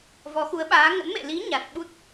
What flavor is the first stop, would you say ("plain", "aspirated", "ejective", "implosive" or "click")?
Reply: implosive